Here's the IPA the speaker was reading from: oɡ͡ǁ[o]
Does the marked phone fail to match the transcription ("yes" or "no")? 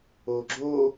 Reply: no